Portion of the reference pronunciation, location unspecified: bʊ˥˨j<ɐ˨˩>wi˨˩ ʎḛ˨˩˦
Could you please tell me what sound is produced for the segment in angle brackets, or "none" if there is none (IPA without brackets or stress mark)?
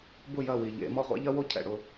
ɐ˥˨